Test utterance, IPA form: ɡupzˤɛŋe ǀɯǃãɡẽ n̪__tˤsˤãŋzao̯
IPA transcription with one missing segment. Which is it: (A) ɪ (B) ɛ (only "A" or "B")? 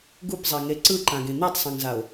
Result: B